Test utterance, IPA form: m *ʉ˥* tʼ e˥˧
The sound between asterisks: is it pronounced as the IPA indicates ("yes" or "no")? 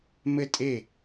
no